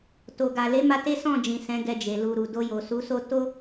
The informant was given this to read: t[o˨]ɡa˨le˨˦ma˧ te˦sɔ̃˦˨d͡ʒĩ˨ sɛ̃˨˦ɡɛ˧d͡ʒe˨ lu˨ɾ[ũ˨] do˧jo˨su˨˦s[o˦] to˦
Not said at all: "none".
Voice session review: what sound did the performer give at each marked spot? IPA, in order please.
o˨, u˨, o˦

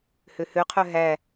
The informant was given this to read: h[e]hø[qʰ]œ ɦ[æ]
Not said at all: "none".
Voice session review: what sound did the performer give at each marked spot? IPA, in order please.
ø, qʰ, æ

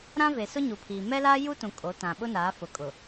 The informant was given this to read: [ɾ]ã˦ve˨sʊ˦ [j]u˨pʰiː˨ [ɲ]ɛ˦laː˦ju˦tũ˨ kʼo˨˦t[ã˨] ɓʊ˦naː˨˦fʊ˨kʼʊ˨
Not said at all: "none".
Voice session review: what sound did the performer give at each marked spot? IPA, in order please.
ɾ, ɲ, m, ã˨

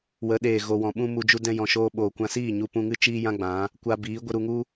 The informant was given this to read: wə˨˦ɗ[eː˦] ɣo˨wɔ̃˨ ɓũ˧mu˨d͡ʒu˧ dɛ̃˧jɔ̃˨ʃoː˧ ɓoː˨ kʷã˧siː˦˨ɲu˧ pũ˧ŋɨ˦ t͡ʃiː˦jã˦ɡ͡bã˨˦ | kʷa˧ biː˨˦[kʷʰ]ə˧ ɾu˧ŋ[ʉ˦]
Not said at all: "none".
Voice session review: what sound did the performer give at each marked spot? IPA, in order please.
eː˨, ɡʷ, u˦

